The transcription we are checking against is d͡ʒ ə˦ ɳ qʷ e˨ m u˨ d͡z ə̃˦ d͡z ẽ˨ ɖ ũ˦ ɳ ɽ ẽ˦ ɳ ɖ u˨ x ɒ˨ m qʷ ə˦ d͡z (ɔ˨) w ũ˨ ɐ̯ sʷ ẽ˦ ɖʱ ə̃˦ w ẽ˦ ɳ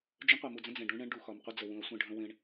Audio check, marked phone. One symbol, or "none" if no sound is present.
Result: ə˨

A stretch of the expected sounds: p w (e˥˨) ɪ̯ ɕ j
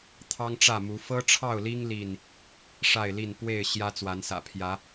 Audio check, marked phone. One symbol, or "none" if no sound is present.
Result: e˥˨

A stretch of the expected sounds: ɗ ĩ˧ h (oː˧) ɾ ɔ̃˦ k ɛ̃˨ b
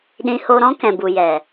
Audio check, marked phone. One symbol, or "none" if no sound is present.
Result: o˧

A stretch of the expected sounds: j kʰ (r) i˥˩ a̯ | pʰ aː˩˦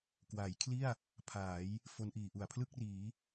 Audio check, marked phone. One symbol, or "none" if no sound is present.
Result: l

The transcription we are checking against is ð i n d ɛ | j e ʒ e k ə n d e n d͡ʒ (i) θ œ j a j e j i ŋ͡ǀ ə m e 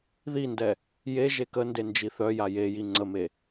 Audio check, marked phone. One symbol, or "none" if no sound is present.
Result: i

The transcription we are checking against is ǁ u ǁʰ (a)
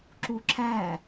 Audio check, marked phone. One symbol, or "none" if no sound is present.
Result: æ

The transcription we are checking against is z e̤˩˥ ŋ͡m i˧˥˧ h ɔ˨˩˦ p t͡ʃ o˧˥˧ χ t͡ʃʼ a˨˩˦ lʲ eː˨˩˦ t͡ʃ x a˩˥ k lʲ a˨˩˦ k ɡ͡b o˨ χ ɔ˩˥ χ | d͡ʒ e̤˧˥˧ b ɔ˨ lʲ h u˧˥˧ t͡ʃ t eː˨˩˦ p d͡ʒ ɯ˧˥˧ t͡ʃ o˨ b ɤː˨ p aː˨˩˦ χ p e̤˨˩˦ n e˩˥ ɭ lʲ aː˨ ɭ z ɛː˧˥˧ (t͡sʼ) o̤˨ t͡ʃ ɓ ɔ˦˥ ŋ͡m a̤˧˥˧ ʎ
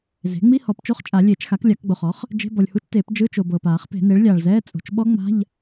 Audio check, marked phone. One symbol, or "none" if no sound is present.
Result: t͡sʼ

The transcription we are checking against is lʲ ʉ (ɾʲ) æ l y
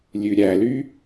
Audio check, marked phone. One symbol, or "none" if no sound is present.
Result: ɾʲ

